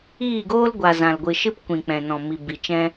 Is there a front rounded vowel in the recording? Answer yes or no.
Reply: no